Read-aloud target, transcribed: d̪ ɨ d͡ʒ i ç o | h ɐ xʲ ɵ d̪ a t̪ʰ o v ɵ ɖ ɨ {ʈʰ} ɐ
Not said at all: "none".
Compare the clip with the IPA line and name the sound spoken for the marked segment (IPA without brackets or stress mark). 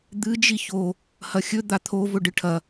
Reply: ʈʰ